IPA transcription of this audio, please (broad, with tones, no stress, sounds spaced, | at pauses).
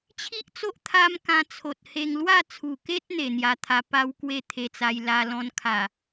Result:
t͡ɕʰ i˦ ʔ t͡s o˦ ʔ t̪ʰ a˦ m k ã˧ t͡sʰ o˨ t̚ h e˧ ŋ l w a˥˧ t͡sʰ u˨˩ k e˦ t̚ n̪ e˨˩ n̪ j a˧ t̪ʰ a˧ p a˧ w k w e˥˧ t̪ʰ e˧ t͡s a˧ j l a˧ l ɔ̃˧ n kʰ a˨˩